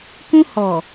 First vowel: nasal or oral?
nasal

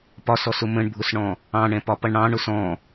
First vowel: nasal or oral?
oral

